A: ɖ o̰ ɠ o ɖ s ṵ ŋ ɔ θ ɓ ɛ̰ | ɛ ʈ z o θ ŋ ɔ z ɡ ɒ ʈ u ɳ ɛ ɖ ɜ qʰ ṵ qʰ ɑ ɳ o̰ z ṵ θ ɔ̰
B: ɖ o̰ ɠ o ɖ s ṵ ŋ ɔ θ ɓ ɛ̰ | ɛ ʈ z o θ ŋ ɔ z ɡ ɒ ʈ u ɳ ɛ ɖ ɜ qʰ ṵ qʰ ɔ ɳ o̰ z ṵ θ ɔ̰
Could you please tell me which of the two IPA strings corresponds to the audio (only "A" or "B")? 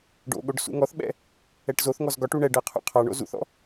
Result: A